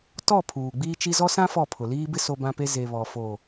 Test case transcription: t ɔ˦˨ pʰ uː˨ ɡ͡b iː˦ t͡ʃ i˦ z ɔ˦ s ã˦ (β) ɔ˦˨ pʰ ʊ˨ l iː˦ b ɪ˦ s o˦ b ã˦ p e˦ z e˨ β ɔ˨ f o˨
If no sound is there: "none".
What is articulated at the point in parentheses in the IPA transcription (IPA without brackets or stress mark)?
f